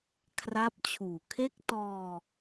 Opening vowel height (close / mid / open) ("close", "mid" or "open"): open